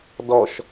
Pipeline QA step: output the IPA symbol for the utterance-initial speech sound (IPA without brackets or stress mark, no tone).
d